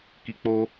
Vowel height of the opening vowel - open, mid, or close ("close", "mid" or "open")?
close